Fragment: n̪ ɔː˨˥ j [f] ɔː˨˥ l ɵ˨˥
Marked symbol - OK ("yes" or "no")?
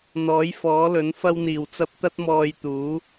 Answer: yes